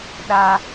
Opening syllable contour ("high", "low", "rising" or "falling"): high